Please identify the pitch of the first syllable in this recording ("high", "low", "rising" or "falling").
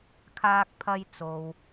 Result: high